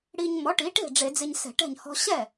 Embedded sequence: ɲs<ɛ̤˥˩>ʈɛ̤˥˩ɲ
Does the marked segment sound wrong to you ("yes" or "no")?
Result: yes